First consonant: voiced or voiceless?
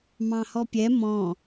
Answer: voiced